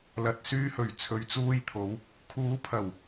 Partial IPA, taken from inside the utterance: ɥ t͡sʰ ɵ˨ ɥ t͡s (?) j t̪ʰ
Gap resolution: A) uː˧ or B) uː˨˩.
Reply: A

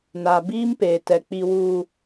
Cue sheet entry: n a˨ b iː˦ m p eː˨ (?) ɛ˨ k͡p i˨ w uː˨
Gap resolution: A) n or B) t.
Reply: B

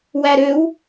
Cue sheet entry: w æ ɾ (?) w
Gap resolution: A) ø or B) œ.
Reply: A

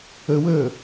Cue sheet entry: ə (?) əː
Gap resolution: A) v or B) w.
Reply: B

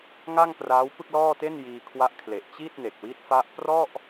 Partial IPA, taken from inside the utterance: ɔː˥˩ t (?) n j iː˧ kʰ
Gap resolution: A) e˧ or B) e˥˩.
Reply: B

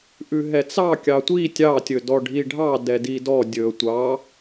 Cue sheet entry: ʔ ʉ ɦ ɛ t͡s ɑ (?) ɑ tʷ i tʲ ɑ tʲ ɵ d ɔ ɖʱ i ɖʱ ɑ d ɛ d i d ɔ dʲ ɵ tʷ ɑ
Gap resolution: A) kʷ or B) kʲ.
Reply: B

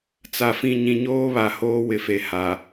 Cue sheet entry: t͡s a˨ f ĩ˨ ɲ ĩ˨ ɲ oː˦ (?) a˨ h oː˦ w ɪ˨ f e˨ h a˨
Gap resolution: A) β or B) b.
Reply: A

